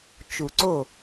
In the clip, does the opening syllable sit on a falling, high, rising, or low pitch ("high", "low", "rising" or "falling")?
low